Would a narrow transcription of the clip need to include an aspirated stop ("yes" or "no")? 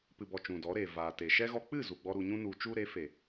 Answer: no